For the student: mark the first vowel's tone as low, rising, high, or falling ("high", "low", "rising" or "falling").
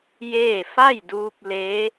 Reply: falling